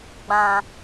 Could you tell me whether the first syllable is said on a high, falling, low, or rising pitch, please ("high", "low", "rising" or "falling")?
low